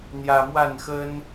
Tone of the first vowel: low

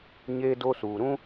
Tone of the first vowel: high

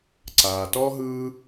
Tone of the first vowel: low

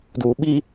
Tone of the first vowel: low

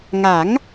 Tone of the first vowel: rising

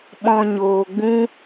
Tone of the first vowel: low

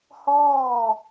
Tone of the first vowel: falling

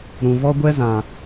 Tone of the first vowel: low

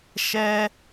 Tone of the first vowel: high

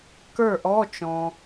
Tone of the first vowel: falling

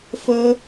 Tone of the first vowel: high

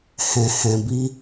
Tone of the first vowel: low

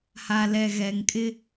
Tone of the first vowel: low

